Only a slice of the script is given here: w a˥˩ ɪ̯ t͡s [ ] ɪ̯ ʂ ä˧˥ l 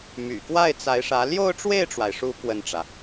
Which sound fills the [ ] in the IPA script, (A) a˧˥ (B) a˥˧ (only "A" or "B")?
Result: A